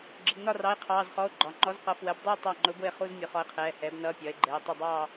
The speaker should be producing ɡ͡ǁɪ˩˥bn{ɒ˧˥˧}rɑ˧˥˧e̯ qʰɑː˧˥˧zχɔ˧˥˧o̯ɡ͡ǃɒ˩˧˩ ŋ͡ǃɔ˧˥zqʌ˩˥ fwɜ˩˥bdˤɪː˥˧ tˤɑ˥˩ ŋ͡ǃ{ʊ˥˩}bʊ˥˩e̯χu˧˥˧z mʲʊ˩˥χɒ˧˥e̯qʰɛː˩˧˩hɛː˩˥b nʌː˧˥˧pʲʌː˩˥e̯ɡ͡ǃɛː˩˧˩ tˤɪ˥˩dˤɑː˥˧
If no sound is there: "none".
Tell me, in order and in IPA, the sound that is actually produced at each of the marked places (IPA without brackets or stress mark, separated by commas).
ɒ˥˧, ʊ˧˥